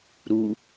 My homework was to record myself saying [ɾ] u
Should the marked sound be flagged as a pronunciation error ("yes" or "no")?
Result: no